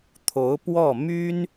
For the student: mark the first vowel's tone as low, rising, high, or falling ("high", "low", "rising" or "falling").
rising